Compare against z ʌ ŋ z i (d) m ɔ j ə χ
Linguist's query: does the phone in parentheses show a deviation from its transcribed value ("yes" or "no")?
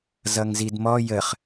no